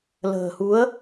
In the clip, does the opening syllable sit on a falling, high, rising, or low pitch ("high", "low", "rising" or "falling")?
low